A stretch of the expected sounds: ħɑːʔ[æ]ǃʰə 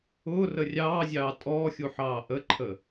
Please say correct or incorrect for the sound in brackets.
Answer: incorrect